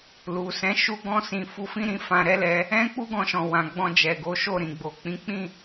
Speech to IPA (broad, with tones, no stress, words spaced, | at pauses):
lu˨sɛ̃˨˦ ʃu˦ɡɔ̃˦sĩ˧ fu˧fĩ˦ɾĩ˧ fã˧ɾɛ˦lɛ˧ | ɛ̃˦ k͡pu˦ɡɔ̃˧ʃɔ̃˨ wã˨ɡ͡bɔ̃˧d͡ʒɛ˨ɡo˨˦ ʃo˦˨ɾĩ˨ɡ͡bo˨ k͡pĩ˨˦k͡pĩ˦˨